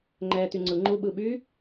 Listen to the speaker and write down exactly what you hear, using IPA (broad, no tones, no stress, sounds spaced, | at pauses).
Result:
ŋ͡ǃ ɛː t̪ y ŋ͡ǀ ɯ ŋ͡ǃ u ɓ ɯ ɓ y